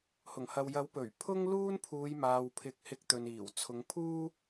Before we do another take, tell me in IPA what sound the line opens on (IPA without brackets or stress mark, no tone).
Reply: h